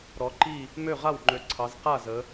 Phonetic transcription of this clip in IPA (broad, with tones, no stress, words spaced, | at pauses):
ɾɔ˩˧ǃi˥˩ | mø˥˩ʁa˥˩wŋ͡ǃø˨˩ ǀʰɑ˩˧z qa˥˩zə˩˧